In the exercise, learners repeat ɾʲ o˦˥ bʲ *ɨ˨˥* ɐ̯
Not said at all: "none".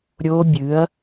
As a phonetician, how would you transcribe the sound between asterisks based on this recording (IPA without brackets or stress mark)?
ɨ˨˥